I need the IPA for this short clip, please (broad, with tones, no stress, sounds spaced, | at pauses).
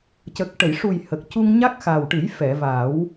c ə˨˩ k̚ ʈ ə˨˩˨ j ʂ u˨˩ j h ə˨˩ k̚ c u˧ ŋ ɲ a˦˥ k̚ x a˨˩ w ʈ ɨ˨˩˦ j f ɛ˨˩˨ v a˨˩˦ w